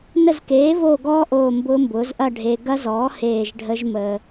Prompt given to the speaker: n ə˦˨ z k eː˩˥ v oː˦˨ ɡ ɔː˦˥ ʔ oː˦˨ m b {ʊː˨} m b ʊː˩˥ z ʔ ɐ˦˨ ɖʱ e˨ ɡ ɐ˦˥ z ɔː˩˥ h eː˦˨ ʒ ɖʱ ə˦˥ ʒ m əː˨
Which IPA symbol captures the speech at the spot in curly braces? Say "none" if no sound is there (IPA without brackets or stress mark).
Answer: ʊː˦˥